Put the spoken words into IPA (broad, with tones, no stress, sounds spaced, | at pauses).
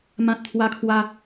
m ã˦ t̚ t̪ʰ w a˦ kʰ w a˦